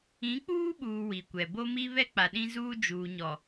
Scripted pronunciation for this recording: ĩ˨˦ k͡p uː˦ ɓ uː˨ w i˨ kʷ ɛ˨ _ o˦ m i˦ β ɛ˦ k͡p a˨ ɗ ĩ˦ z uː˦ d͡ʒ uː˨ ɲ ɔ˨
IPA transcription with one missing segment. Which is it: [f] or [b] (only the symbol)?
b